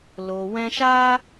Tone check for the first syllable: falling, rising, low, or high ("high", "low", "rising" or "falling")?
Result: low